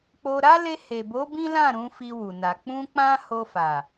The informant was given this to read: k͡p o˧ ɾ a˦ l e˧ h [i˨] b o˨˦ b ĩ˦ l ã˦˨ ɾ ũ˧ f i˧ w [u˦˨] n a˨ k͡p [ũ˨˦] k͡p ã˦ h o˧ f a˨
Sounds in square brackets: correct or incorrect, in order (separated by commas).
incorrect, incorrect, incorrect